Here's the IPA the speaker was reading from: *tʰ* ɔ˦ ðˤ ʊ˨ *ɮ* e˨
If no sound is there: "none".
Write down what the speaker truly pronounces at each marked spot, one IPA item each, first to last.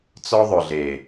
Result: t͡s, ɮ

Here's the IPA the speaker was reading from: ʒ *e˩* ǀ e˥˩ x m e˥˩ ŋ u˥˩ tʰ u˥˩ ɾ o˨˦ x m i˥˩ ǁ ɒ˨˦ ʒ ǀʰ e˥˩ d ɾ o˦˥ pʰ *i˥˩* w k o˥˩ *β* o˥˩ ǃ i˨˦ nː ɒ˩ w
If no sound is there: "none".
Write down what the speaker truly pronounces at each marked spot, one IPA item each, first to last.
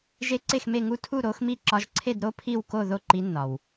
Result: e˦˥, i˥˩, ð

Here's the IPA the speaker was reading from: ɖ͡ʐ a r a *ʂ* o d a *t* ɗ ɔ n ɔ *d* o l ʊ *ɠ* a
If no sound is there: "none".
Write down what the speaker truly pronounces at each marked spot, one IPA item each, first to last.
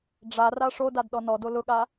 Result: ʂ, d, d, ɠ

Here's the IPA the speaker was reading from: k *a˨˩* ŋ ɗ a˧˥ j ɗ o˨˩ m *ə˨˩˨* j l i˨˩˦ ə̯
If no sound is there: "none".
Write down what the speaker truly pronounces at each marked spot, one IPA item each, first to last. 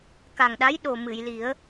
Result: a˨˩, ɨ˨˩˨

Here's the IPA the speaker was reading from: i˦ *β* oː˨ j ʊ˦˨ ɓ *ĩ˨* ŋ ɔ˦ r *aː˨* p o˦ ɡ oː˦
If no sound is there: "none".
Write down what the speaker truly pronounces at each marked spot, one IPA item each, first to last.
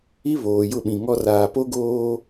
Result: β, ĩ˨, aː˨

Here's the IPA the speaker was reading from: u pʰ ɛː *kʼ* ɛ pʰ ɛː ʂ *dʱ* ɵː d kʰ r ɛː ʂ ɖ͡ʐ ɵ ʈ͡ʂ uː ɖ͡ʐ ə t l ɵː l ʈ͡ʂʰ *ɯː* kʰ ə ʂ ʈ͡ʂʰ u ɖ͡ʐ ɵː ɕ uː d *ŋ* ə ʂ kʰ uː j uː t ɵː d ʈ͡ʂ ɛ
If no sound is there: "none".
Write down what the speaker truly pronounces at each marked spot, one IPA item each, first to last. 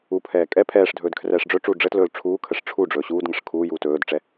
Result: kʼ, dʱ, uː, ŋ

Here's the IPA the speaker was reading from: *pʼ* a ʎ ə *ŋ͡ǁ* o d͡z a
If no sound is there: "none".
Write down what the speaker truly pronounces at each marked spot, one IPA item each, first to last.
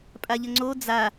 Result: pʼ, ŋ͡ǀ

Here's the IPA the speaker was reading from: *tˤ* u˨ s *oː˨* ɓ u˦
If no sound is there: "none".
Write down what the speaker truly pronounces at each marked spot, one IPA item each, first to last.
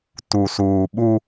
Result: t, uː˨

